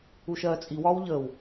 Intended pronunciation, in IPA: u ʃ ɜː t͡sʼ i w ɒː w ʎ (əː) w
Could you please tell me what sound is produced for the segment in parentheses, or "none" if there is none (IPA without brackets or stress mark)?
əː